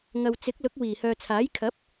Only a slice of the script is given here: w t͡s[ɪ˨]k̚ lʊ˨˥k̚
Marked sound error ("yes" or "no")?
yes